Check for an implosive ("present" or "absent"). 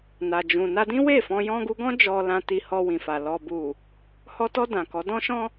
absent